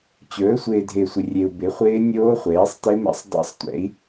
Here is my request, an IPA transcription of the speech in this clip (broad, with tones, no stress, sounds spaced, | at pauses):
t͡ɕ ɵː˩˥ sʷ ɪː˨ dʱ ɪː˨ sʷ ɪ˨ rʲ e˨ u̯ b ɪ˩˥ χʷ ɪː˦˥ nʲ oː˦˥ χʷ eː˩˥ sˤ t ɪ˦˥ m ɛ̰˦˥ sˤ dˤ a̰˦˥ sˤ tʷ ɛ̰˩˥ i̯